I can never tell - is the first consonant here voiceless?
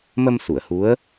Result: no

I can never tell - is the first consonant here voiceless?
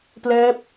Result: yes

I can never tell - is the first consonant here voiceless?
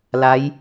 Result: no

